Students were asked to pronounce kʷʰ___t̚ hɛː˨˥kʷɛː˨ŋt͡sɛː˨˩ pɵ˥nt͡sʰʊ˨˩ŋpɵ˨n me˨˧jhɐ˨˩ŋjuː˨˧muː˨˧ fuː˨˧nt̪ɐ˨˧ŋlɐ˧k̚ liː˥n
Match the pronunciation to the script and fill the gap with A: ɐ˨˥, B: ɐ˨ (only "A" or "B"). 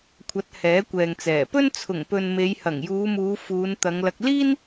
A